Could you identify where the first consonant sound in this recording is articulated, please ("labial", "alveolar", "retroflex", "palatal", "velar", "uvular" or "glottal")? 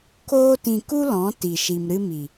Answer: velar